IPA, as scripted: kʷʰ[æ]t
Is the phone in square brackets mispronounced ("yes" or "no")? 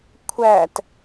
no